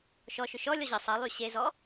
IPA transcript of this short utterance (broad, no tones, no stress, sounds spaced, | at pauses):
ʃ ɔ ʃ ʏ ʃ ɔ lʲ ɔ ʑ ə sˤ ə lˠ y ɕ e z ɔ